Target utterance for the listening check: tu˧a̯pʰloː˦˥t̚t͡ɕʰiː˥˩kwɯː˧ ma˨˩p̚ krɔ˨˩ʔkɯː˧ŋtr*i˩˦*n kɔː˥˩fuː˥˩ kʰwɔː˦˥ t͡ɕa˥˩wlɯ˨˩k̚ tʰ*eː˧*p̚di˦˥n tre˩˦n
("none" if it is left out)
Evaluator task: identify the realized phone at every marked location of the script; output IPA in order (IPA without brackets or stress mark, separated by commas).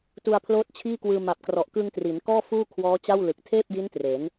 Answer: i˩˦, eː˥˩